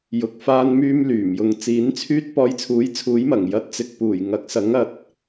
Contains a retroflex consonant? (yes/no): no